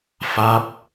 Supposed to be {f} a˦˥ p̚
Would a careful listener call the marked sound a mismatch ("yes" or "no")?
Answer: no